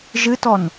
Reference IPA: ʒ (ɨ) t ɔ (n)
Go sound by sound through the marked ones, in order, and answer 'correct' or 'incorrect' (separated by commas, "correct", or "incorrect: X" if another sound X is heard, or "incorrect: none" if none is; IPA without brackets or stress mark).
correct, correct